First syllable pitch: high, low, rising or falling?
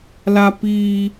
high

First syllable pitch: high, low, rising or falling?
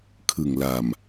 low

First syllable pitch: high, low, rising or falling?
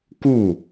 falling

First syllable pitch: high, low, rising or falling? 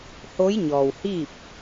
rising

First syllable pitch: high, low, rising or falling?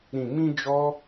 low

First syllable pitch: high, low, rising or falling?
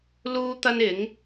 high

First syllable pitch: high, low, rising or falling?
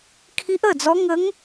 rising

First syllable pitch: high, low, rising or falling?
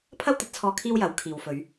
high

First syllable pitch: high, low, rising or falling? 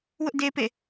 high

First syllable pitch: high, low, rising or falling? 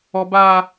high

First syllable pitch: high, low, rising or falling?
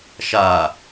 low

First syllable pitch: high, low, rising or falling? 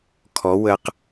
rising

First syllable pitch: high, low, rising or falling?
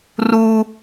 high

